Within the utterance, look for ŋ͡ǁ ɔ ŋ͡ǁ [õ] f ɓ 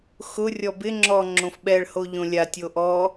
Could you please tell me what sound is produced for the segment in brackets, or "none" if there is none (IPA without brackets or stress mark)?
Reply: õ